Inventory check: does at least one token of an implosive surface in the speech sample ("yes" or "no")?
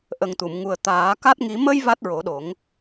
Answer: yes